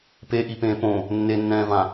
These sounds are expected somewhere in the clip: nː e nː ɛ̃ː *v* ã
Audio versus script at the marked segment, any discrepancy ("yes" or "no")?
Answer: no